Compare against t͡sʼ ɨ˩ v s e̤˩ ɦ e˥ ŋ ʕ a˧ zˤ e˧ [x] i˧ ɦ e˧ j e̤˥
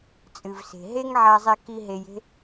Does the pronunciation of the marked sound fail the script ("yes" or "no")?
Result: yes